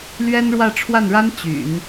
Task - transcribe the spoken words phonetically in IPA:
lɥɛ˥nɻwä˥˧ ʈ͡ʂʰwa˥˩nɻa˥n t͡ɕy̰˨˩˦n

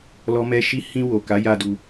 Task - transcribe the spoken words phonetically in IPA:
lɔ˦mɛ˦ ʃi˦ hĩ˧ wo˨ka˨˦ja˧ du˧

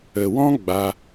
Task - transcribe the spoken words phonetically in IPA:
ə˨wɔ̃˦ ɡ͡ba˧

